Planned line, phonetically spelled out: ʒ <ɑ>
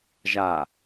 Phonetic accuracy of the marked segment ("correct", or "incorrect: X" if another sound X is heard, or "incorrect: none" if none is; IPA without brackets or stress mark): incorrect: a